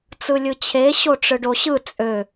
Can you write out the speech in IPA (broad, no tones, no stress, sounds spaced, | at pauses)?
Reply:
t͡s ɯ lʲ ɯ t͡ɕʰ e ɕ o ʈ͡ʂ ɯ ɖ o ɕ ɯ t͡sʼ ø